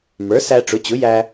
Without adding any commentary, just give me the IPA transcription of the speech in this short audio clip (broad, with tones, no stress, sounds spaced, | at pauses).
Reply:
m ə˞˩˥ s æ˧ ʈ͡ʂ ʊ˩˥ t͡ɕ ʊ˩˥ j æ˧